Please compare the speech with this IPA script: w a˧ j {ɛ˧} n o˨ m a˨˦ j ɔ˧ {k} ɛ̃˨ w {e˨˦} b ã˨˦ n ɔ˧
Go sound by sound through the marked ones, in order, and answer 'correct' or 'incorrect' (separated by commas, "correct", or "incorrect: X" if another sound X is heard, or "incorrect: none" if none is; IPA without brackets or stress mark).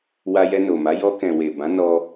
correct, correct, incorrect: e˨